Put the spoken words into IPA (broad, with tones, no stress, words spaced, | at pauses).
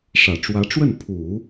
ʂä˨˩ʈ͡ʂwä˧˥ʈ͡ʂwə˥˩n pʰu˨˩˦